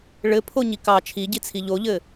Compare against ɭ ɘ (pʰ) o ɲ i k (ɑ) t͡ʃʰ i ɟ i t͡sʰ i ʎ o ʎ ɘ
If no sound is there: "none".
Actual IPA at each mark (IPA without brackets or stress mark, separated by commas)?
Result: pʰ, ɑ